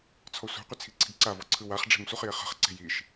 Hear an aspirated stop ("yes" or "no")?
yes